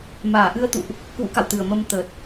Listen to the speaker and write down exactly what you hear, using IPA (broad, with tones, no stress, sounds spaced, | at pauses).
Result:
m aː˨˩ ʔ ɨ˧ ə̯ t̪ ṵ˧˨ ʔ | k w ṵ˧˥ k a̰˧˨ w t̪ ɨ˨˩ ə̯ m ə˧ m t̪ ə˨˩ t̚